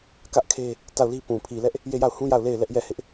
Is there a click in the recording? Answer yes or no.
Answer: no